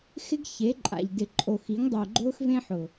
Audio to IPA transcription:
xɪ˦ɡ çe˨˦ǃʼa̰˨ʎ dɪ˨ǃʼo˨xi˨˦ŋ dˤʊː˨ɡ͡ǃʊː˦xvẽ˦ħʊ˨

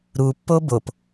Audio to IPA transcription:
ɾupːo bop

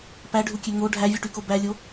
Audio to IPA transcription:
pæɖʱukʲø ŋo ɖʱævʲuʈyko bælʲo

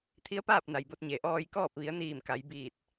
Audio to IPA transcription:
t̪ʰi˧˥ə̯paː˥˨p̚ na˩jbo˧t̚ɲe˩ ʔɔː˧jkɔː˥˨p̚ ʋi˩˧ə̯niː˧˩m ka˩˧jbiː˧˩t̚

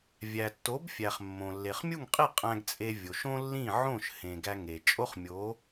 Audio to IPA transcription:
vʲæ˩tːo˩˥bfʲæ˩χ mːõ˩lːe˩χmʲu˥˩ŋqʼi˥˩ qʼæ̃˧ɡt͡sʼe˧ vʲo˩ʃõ˥lːĩ˥˩ ʕõ˥˩ʃ hẽ˩ɡæ˧ ŋe˩ t͡ʃʼo˥χmʲo˩˥

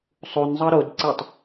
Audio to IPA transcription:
sˤunzˤɤ ɾodǀetˤ

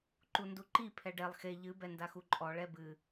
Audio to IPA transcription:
ǃunduǃi pʰɛɖɛlˠ xe ʎɨ bɛndaxuǃʼɔ ɭɛbɨ

